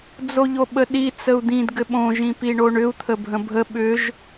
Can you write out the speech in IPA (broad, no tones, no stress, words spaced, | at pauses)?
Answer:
d͡zoʎoɓəɗi t͡səu̯d̪ĩd ɡɘɓõ ʒĩpiɳoɳʏu̯ t̪ʰəbʱə̃bʱə ɓʏʒ